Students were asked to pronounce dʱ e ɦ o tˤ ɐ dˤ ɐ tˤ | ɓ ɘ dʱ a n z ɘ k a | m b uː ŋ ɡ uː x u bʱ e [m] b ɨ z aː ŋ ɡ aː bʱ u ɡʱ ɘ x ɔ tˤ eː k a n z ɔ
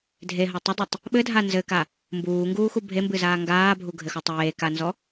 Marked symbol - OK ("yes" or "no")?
yes